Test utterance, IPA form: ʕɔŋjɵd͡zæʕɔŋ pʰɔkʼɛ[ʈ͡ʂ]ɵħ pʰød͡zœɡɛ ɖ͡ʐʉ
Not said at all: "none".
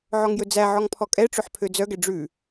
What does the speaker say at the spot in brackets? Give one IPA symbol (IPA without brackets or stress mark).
ʈ͡ʂ